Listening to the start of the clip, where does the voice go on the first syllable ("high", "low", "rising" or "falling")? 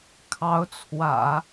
rising